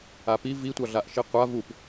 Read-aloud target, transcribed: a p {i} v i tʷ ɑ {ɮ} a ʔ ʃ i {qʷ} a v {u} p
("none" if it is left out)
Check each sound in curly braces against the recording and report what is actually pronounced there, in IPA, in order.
i, ɮ, qʷ, u

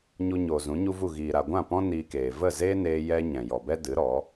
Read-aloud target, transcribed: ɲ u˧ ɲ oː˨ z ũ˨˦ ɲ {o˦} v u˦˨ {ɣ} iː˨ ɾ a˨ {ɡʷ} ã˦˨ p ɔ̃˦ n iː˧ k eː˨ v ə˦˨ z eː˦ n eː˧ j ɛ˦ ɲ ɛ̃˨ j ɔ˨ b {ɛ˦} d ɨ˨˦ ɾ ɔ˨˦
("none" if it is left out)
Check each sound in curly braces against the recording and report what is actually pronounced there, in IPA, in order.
u˦, ɣ, ɡʷ, ɛ˦

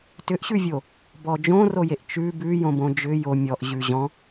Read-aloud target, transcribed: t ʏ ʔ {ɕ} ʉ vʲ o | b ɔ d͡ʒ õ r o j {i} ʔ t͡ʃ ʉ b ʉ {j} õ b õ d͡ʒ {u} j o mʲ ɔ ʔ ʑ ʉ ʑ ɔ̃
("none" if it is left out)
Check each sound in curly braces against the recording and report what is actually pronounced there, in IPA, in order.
ɕ, e, j, ʏ

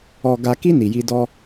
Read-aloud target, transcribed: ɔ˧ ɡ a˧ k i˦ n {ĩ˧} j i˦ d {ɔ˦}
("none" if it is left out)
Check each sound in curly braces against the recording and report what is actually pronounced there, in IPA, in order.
i˧, ɔ˦

